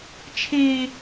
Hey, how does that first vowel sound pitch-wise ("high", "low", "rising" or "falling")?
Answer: high